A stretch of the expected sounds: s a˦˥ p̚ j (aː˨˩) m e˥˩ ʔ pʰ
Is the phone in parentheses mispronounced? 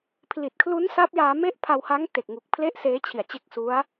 yes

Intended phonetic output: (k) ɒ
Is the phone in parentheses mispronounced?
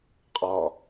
yes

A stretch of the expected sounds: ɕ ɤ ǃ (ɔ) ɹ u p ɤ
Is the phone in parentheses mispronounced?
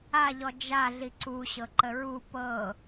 yes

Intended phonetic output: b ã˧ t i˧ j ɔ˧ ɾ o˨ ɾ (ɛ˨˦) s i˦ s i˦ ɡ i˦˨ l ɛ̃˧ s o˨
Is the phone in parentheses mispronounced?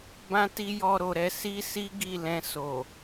no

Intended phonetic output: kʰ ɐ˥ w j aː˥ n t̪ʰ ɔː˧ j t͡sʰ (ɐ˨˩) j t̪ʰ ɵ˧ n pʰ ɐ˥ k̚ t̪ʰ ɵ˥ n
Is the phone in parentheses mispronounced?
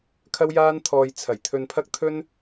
no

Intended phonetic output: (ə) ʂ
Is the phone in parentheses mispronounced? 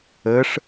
no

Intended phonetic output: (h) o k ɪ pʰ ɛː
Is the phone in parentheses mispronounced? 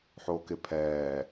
yes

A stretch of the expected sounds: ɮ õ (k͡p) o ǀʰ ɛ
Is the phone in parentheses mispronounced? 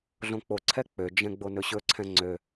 no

